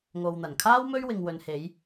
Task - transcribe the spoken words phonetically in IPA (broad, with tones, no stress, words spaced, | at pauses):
ŋo˨wn̪ɐ˨˩nkʰaː˥w mɵ˥ɥ wɪ˨ŋwɵ˨nhe˨˧j